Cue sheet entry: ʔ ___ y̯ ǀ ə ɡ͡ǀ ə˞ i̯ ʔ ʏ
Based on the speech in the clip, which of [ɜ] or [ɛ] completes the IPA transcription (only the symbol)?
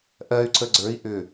ɜ